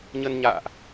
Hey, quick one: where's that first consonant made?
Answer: palate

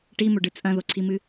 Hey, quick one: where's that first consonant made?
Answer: retroflex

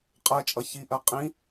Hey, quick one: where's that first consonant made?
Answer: uvula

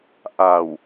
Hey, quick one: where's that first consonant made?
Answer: throat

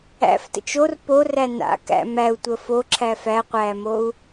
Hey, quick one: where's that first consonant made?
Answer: lips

